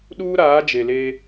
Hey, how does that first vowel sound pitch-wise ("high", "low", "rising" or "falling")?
high